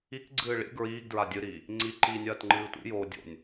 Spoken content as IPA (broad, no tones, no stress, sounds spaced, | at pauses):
i k ɡ͡ǀ ɨː ɭ ḭ ɡ ɹ iː ɡ d ɹ a dʲ ɨ ɾ iː | ŋ͡ǀ i ǃ iː nʲ ɐː t ŋ͡ǃ ɨː tʷ ḭ j oː dʲ o̰ nʲ